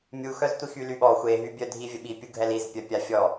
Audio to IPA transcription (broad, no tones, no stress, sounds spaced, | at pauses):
mʲ u x œ z tʷ i x y l y ɓ ɔ xʷ e ɦ y bʲ œ dʱ i vʲ ə ɓ i pʲ u ɡʱ ɛ l i z pʲ œ pʲ a fʲ ɔ